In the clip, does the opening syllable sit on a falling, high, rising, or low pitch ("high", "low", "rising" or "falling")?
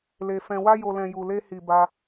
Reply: low